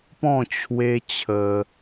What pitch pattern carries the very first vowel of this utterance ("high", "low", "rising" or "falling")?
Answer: falling